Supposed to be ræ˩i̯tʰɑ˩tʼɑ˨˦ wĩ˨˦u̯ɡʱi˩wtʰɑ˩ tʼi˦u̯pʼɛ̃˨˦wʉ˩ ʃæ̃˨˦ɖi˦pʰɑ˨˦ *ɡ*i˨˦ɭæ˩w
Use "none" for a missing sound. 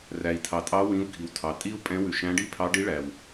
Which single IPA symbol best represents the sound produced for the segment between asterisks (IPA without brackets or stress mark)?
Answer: ɖ